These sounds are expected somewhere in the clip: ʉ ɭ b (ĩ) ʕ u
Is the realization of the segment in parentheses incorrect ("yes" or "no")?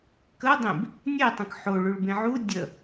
yes